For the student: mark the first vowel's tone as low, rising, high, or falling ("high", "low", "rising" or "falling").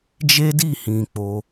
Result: high